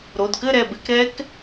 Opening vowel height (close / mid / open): mid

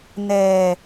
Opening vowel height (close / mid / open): mid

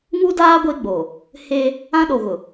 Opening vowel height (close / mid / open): close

